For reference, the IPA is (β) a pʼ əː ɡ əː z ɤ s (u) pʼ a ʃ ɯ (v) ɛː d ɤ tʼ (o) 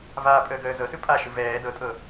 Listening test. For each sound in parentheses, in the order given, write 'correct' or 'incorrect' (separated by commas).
incorrect, incorrect, correct, incorrect